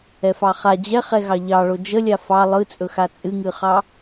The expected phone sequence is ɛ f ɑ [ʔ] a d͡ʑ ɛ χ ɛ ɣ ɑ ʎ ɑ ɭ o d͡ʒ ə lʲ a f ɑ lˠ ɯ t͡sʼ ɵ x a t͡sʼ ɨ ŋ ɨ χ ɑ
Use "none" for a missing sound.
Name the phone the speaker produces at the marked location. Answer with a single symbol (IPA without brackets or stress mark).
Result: χ